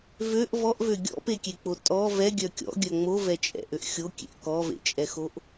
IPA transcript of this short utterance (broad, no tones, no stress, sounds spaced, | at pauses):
v ø ʔ v ɔ ʔ v ø ɡʲ ɔ̰ p e kʲ e k͡p o tʼ ɔ v ɛ ɡʲ œ kʲ ɔ̰ ɡʲ œ ŋ͡m o v ɛ t͡ʃʼ ɛ̰ ʔ ø ʔ xʲ o kʲ ḛ ʔ k ɔ v ḛ t͡ʃʼ ɛ x o ʔ